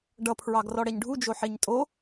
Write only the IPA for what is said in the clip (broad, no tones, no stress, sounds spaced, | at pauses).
ɖ ʌ pʰ ɹ ɑ ɡ r ɔ ɽ ɛ ɲ ɖʱ u d͡ʒ o ħ e ɲ tʼ o